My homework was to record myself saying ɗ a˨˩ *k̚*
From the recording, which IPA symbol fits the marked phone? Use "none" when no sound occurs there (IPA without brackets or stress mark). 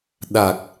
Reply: k̚